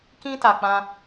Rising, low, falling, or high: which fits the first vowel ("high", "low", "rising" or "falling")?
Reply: high